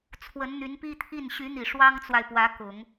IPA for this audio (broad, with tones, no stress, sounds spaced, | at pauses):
t͡sʰ w ə˧˥ n n̪ y˧˥ n p i˥ t̪ʰ i˥˩ n ɕ y˧˥ n̪ i˨˩ ʂ w ɑ˥ ŋ t͡s w a˨ ɪ̯ p w ä˧˥ k ʊ˨˩˦ ŋ